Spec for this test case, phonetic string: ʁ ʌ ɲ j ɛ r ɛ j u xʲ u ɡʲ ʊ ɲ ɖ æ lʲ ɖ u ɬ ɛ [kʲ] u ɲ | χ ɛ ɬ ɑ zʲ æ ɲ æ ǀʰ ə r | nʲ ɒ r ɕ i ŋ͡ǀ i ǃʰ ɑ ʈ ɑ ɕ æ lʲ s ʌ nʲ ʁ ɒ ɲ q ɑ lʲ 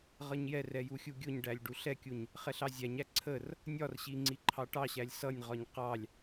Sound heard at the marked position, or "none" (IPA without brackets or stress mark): kʲ